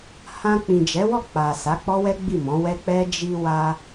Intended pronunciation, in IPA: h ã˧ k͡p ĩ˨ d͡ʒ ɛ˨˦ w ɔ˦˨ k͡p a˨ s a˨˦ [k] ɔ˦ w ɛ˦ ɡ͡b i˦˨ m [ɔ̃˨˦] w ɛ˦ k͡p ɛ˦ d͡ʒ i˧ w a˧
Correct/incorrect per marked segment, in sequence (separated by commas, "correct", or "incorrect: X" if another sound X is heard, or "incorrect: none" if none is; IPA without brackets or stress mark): incorrect: k͡p, correct